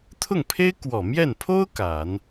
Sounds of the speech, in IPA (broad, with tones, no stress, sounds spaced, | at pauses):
t̪ʰ ʊ˥˩ ŋ pʰ e˥ ɪ̯ k w ɔ˨˩ m j ɛ˥˩ n pʰ o˥ ʊ̯ k a˨˩˦ n